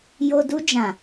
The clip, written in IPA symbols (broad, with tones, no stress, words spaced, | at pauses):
jo˨ du˧d͡ʒã˨